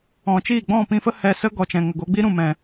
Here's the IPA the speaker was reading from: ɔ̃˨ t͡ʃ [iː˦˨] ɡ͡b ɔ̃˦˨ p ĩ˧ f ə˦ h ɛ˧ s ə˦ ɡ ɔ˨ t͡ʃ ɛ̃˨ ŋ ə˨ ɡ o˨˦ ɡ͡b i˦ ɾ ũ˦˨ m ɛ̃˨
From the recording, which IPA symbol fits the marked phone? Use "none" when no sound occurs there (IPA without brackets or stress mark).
iː˦˨